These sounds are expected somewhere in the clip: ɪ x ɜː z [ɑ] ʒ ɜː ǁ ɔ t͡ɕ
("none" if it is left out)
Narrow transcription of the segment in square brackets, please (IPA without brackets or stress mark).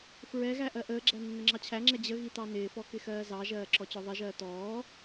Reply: ɑ